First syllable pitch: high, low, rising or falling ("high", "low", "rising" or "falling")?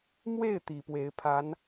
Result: falling